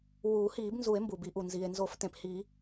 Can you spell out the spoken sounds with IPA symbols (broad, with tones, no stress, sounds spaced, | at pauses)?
w uː˨˩˦ h iː˨˩˦ b n z u˨˩˦ e̯ m b u˩ b i˨˩˦ ʔ u˩ n z i˩ e̯ n z o˨˩˦ f t ẽ˩ p h iː˨˩˦